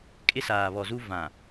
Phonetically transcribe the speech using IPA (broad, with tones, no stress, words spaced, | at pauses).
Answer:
kʼɪ˦saː˨βɔ˨zu˦ vã˨